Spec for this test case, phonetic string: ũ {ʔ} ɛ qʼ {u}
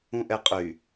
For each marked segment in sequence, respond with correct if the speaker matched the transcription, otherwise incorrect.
correct, incorrect: y

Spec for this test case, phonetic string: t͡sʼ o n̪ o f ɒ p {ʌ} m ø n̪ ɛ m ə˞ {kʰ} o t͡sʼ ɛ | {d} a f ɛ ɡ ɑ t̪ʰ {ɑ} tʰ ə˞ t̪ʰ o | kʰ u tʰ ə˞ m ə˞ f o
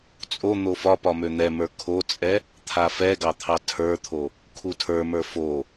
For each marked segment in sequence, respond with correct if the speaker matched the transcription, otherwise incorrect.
incorrect: ɒ, correct, incorrect: t̪ʰ, correct

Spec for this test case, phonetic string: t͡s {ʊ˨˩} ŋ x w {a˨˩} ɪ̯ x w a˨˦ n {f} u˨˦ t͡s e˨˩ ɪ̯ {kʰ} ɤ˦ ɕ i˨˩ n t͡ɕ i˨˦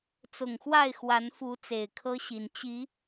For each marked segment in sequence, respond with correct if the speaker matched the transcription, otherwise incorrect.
correct, incorrect: a˥˨, correct, correct

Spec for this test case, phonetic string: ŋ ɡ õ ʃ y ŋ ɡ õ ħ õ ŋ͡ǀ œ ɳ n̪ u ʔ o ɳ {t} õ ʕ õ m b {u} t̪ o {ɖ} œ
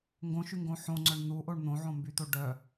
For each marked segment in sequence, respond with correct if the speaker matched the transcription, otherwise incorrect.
incorrect: n̪, incorrect: y, correct

